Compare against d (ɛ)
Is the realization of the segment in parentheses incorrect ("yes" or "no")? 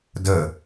yes